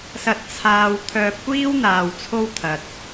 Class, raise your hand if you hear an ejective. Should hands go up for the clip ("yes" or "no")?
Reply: no